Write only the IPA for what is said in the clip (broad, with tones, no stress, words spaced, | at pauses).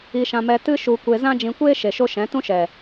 i˧ʃã˧mɛ˧ tɨ˦ʃu˧kʷe˧ zã˦d͡ʒĩ˧kʷeː˦ ʃe˨ʃo˧ ʃɛ̃˨˦tũ˦ʃɛ˨